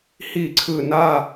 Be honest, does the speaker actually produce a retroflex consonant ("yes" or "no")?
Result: no